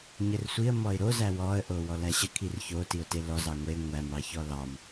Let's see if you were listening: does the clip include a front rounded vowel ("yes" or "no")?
no